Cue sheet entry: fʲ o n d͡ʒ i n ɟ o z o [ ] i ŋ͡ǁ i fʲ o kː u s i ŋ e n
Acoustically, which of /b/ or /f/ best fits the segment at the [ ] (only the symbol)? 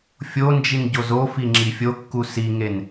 f